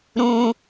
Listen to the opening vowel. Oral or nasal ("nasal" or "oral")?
nasal